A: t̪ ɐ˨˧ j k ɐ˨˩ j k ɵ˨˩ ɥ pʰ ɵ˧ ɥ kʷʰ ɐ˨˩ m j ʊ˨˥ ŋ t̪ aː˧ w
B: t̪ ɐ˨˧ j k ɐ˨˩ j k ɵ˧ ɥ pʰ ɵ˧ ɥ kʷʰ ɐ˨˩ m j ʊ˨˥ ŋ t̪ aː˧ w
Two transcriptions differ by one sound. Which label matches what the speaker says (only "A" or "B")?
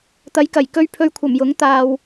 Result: B